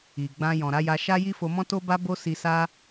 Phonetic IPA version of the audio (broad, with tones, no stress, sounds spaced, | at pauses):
i˨ ɡ͡b ã˧ j ɔ̃˨ ɾ a˨˦ j a˧ ʃ a˦ j i˦ f o˧ m ɔ̃˦ t o˦ b a˦ b o˦ s i˧ s a˦